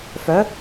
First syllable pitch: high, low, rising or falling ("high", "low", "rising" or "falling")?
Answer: rising